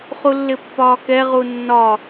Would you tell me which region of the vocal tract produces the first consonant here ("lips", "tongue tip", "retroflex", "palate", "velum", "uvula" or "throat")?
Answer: uvula